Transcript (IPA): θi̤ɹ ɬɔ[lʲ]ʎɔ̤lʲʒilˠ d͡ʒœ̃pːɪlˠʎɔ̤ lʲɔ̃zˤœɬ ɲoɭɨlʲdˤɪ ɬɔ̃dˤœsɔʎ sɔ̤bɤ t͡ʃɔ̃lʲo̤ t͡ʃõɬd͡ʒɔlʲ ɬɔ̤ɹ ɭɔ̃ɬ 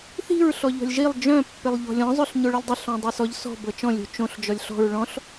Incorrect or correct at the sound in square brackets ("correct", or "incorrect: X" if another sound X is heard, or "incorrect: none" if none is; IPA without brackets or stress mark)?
incorrect: none